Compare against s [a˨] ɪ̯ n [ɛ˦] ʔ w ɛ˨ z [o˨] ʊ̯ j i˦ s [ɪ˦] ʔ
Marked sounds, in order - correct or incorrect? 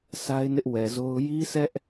incorrect, incorrect, incorrect, incorrect

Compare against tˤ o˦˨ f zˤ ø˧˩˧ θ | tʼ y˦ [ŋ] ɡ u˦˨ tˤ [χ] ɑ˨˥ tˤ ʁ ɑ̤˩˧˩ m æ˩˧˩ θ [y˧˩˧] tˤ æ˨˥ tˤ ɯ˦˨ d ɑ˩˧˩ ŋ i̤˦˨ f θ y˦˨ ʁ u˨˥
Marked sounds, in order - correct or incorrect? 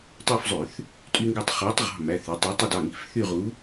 correct, correct, incorrect

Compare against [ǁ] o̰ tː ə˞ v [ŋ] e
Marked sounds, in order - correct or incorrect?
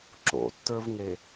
correct, correct

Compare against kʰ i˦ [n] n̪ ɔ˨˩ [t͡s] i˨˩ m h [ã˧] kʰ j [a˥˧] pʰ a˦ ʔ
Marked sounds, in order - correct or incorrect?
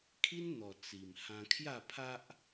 correct, correct, correct, correct

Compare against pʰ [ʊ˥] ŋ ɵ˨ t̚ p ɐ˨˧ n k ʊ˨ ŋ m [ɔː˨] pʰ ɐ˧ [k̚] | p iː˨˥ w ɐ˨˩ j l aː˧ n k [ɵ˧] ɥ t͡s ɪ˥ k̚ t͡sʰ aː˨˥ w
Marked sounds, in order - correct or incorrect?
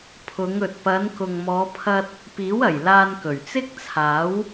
incorrect, incorrect, incorrect, incorrect

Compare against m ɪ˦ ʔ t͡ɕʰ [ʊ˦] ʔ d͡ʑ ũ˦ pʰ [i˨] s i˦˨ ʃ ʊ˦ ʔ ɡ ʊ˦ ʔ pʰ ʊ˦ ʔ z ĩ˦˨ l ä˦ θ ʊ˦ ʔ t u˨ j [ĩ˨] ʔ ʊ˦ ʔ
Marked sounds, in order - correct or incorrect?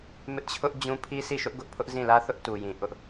correct, incorrect, correct

